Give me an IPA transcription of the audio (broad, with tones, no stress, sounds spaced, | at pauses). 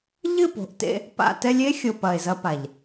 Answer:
ʎ ɨ˦˨ p o̤˨ ʔ t ḛ˧ | p a̰˨ t ɛ˧ lʲ e˦ xʲ o˨ p ɐ˨ e̯ z ɐ˧ p a˨ ʎ